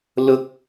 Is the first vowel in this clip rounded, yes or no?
yes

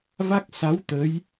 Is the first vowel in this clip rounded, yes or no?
no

